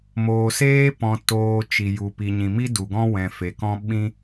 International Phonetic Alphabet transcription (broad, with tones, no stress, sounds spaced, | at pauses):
m oː˨ s eː˦ p ɔ̃˧ t oː˧ t͡ʃ i˨ j u˨ p i˨ ɲ ĩ˨ m i˦ d u˨ ɡ ɔ̃˦ w ɛ̃˨ f e˨ k ɔ̃˦ ɓ ĩ˦